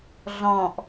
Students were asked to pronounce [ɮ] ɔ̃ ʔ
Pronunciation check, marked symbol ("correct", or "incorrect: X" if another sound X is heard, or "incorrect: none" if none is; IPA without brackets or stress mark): correct